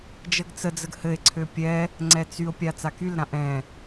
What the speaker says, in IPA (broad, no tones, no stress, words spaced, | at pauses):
d͡ʒəɡt͡səd͡zəɡ hɘe̯ǀʰø pʲɛ | ŋ͡ǀɛt͡syo̯pʲa t͡sakylɾã ʔɛ̃